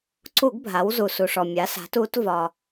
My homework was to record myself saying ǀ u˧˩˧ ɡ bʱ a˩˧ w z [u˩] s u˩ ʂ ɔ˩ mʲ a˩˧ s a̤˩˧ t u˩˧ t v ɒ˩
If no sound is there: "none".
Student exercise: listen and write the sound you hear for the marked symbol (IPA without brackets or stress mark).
u˩